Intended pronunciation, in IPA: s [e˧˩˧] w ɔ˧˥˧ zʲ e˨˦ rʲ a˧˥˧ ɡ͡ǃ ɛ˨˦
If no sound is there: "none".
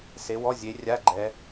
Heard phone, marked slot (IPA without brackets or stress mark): e˨˦